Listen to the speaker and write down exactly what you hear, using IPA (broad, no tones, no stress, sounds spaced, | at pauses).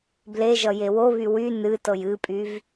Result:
b l e ʒ ʌ j e w o β y w y n ɨ t ɤ j ɨ pʼ y v